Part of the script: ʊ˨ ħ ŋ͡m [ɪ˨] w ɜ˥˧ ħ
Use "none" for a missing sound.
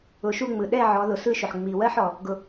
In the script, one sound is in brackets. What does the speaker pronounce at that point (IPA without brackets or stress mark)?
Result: i˨